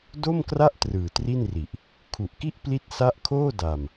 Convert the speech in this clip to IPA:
do˥˩mkra˥˩ʔ trɯː˨˩tri˥˩nri˨˩ʔ | kʰu˨˩ʔki˥˩ʔ pli˦˥t̚sa˦˥ʔkʰoː˥˩ da˧m

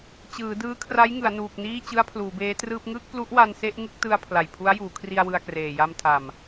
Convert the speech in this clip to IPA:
t͡ɕɯː˩˦dɯː˦˥kʰra˦˥jŋɯ˩˦a̯ nuː˨˩k̚niː˥˩ t͡ɕɯ˦˥a̯pʰluː˩˦beː˦˥trɯː˥˩p̚ ŋɯː˥˩k̚plu˦˥ʔwa˧n se˥˩ʔŋɯ˥˩k̚tɯ˧a̯ pʰla˨˩jpʰu˦˥a̯juː˩˦kʰri˧a̯ wɯ˧a̯kreː˨˩ ja˧mtʰa˨˩m

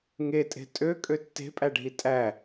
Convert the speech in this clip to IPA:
ŋetʼe̤ tʼø kʼøtːe̤pʼæɖʱi tʼæ

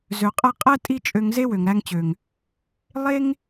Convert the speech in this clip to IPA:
zø˨qʼɛ˧ qʼɛ˦ tʼi˦t͡ʃʼø˧ŋze˦ wø˨ŋɾæ˧ŋt͡ɕø˨ŋ | lˠe˦ŋ

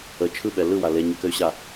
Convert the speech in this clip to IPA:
ə t͡ʃʰɯɓɛ lɯwa leɲəkɘy̯ɕa

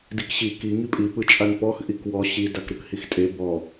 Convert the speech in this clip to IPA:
dikɕi ki ŋipʼi pɯt͡ʃʼanpɔx ʔikwɔ ɕi dakɾɯkhixtʼe bɔ

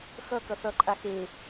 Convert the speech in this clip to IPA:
xʌ kʌθʌ ǃʼaxe

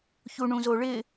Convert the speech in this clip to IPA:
çuɳũzoɭɪ

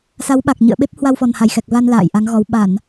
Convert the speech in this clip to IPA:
sa˨˦wɓa˨˩k̚ɲɨ̰˧˨ə̯ɓe˦˥p̚ hwa˧wfɔ˨˩nha˧˩j xɛ˨˩k̚va˧n la̰ː˧˨jʔa˨˦ŋɣɔ˨˦w ɓa˧˩˨n

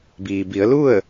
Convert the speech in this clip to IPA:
biː˩bi˩˧ə̯lu˥˨ə̯

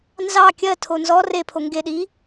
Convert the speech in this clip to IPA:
nzɑ kʲɜtʰo nzɔ repʰo ŋɡeɗi

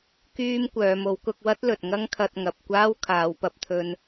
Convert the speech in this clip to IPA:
kyː˧m kʷœː˨˧mo˨˥w kʊ˧k̚ wɐ˥t̚lɵ˨t̚ ŋɐ˥ŋkʰɐ˧t̚ŋɐ˨p̚kʷaː˥w kʰaː˨˧wpɐ˧p̚t̪ʰɵ˧n

